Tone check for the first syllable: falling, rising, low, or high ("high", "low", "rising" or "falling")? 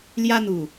high